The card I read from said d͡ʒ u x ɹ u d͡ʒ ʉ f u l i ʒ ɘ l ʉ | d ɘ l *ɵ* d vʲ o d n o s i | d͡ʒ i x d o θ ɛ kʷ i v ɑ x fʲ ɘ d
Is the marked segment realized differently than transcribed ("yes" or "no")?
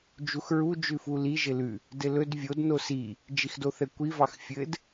no